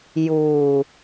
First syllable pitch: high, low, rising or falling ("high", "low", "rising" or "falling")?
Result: low